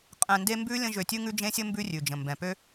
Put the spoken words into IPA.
qʼ ɛ̃˧ n d e˦ m b ʉ˦ lʲ ə̃˦ ʒ ø˧ tʲ ʉ˦ ŋ ʉ˦ d͡ʒ ẽ˦ sʲ ɘ˦ m b ʉ˦ rʲ ʉ˨ d͡ʒ ə̃˨ m b ɛ̃˨ p ø˦

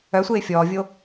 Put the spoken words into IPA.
œ sʷ eː fʲ ɔː vʲ o

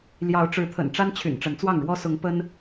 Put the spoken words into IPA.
l j ɑ˨˦ ʊ̯ ʈ͡ʂ ɻ̩˨˦ t̪ʰ ə̰˨˩ n ʈ͡ʂ a˦ n t͡ɕʰ y̰˨˩ n ʈ͡ʂ ə˨˦ n t͡s w ɑ˥˨ ŋ ɻ w ɔ˦ s ʊ˨˦ ŋ p ə˦ n

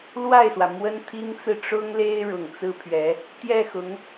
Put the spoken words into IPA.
l w a˥˩ ɪ̯ s w ä˩ m w ə˥ n t̪ʰ i˥ ŋ t͡s ɹ̩˥˩ ʈ͡ʂ ʊ˥ ŋ l e˥ ɪ̯ ɻ ʊ˨˩ ŋ t͡s ɹ̩˥ pʰ ɥ ɛ˧˥ | t̪ j ɛ˥˩ x ʊ˧˥ ŋ

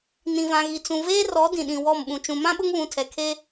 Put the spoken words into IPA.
n ĩ˨ v ã˨ ɣ i˨ t͡s ũ˨ v eː˦ r ɔ˨˦ d ĩ˨ ɗ ĩ˨ w ɔ˦˨ m ɓ ũ˨ t͡ʃ ũ˨ m ã˦ ɓ ʊ˦ ŋ β ũ˨ tʰ ɛ˨ kʰ e˦

